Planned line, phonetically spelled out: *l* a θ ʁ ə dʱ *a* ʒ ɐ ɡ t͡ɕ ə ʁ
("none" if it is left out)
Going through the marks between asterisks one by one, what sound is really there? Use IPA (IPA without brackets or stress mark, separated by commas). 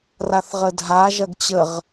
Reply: r, a